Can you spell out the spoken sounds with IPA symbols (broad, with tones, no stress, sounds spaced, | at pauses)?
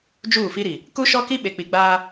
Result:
d͡ʒ uː˦˨ f i˦ ɾ i˨ | k u˦ ʃ ɔ˦ k i˦ ɓ e˨ k͡p i˨ ɡ͡b aː˦